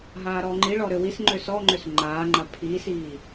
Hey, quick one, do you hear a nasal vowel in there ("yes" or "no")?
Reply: no